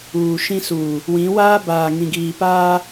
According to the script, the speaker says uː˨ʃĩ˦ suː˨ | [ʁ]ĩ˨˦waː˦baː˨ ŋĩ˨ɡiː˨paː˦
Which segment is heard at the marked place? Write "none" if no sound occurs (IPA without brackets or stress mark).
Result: w